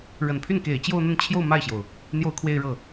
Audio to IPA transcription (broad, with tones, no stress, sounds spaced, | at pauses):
ɻ ə˨˩ n pʰ y˥˩ n k e˨˩ ɪ̯ t͡ɕ j o˥˧ ʊ̯ n̪ ə˥˧ n t͡ɕʰ j o˥˧ ʊ̯ m a˥˩ ɪ̯ ɕ j o˩ ʊ̯ | n̪ j o˥˧ ʊ̯ kʰ w e˥˧ ɪ̯ ɻ ɤ˥˩